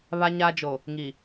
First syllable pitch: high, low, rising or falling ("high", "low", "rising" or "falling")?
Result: high